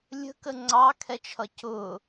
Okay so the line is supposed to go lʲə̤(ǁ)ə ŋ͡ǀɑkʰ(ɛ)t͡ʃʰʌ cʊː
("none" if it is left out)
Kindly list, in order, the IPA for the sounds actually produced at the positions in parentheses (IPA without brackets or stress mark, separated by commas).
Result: k, ɛ